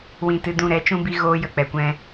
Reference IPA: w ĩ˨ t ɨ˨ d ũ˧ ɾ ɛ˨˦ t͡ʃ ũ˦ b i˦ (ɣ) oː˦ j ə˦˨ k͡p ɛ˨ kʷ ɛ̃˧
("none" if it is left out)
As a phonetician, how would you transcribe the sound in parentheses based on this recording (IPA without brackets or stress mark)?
ɣ